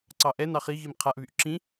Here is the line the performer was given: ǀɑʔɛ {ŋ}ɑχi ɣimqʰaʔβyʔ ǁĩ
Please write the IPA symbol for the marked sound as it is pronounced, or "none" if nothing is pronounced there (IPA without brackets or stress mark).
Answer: n